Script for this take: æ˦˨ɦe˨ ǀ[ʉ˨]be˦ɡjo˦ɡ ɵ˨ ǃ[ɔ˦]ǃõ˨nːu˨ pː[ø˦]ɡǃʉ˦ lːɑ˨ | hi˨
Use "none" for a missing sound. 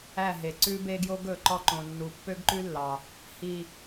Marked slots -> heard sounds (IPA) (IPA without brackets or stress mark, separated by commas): ʉ˦, ɔ˦, ø˦